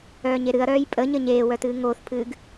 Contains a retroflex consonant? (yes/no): no